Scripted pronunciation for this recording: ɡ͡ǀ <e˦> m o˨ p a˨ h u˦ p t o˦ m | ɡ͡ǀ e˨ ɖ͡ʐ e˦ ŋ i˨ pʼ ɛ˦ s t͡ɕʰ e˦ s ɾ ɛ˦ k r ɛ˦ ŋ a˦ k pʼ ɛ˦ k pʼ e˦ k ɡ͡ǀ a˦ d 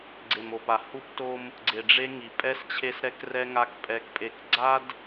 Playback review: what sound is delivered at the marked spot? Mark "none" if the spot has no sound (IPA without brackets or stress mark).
e˨